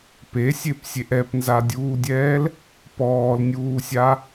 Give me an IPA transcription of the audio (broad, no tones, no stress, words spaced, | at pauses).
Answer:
pesʲepsʲeʔ ɛpnzadʲuːdʲɛːl | pɔːlnʲuːsʲa